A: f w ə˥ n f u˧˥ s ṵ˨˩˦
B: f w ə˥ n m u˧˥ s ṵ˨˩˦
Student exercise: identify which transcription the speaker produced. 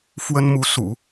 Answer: B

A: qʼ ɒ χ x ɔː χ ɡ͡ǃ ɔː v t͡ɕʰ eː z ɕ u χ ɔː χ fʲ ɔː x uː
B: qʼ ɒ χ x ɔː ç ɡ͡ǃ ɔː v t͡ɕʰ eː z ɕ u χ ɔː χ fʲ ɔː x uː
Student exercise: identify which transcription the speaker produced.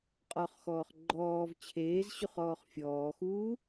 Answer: A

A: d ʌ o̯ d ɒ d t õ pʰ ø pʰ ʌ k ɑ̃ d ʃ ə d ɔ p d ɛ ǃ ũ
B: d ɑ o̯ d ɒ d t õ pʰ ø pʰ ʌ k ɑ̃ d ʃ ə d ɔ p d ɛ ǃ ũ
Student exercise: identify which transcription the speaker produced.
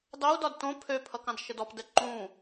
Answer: B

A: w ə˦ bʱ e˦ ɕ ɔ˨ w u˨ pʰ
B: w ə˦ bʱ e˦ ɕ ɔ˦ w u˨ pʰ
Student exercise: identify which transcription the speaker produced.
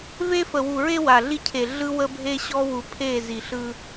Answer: B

